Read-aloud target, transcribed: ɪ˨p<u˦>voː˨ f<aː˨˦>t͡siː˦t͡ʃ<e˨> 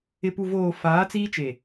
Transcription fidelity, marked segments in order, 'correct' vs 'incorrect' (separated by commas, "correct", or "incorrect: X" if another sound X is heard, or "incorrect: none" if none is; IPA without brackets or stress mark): incorrect: u˨, correct, correct